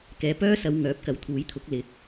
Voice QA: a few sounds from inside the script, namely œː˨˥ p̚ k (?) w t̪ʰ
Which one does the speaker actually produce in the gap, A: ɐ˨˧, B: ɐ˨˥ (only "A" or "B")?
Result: B